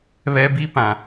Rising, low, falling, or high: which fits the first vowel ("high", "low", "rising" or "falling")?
high